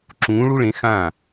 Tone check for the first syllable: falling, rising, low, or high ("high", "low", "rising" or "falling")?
rising